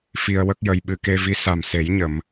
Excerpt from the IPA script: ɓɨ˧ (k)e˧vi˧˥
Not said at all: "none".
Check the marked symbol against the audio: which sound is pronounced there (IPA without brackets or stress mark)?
k